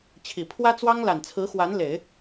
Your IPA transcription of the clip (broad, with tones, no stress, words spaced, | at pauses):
t͡ɕʰi˨˩ pʰwä˥t͡swɑ˥ŋla˨˩n t͡sʰɹ̩˧˥xwa˧˥n le˨˩˦ɪ̯